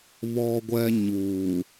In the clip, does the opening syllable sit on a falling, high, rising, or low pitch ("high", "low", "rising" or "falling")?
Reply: low